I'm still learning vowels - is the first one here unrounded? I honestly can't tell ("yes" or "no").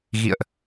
yes